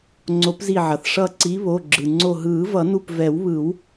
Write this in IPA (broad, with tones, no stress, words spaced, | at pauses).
ŋ͡ǀo˨˩˦pzi˧˩ʕʌ˩θ ʂʌ˧˩ǀi˨˦ βo˩˧˩ɡ͡ǁɯ˩ŋ͡ǀo˧˩ ɦɯː˨˩˦vʌ˨˩˦nu˧˩p vɛ˨˩˦wβɯ˨˩˦w